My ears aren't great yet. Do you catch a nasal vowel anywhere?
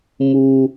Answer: no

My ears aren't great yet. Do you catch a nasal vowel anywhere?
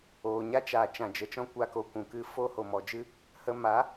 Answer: yes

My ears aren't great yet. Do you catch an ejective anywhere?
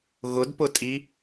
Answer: yes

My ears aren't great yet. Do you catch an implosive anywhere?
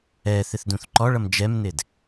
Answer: no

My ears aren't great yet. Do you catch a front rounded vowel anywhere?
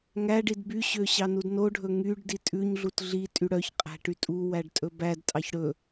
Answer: yes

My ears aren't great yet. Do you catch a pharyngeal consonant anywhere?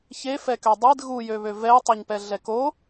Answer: no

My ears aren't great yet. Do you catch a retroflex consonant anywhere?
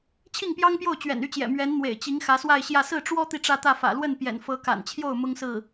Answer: yes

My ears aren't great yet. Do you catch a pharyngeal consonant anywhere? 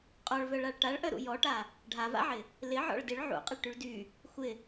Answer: yes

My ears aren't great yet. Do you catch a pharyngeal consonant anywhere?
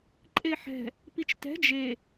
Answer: yes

